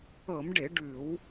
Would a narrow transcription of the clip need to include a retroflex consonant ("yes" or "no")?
yes